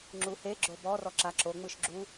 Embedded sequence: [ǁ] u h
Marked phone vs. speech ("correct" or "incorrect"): incorrect